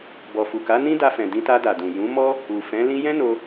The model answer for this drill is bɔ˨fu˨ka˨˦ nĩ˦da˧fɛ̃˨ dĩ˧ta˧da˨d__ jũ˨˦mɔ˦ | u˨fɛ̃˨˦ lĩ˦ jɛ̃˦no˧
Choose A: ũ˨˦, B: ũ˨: B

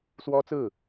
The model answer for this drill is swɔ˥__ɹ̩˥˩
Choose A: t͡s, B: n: A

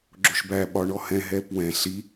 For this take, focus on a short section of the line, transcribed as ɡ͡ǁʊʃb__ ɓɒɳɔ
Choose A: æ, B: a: A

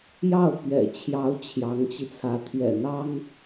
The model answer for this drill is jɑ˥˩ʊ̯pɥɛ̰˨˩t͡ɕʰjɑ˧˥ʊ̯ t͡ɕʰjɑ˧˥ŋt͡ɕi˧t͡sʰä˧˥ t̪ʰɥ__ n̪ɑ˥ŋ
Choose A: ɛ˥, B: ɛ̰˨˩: B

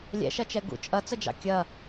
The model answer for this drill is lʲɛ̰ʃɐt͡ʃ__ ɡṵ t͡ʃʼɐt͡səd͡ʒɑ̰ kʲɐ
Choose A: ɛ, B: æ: A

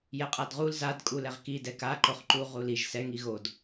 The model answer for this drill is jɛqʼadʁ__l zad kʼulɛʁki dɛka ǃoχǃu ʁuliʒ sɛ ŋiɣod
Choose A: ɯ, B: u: B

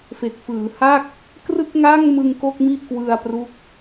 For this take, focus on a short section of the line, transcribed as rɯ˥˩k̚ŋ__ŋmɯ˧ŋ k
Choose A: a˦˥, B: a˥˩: B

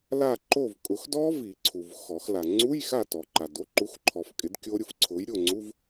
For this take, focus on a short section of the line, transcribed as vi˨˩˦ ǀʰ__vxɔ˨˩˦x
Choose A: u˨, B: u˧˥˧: A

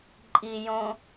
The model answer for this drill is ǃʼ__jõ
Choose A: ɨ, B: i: B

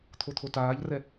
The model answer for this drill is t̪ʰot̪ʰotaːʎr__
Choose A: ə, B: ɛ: B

